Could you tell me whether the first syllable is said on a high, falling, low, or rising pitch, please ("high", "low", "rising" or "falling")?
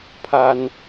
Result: high